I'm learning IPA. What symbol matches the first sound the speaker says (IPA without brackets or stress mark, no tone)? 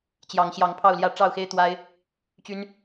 t͡ɕ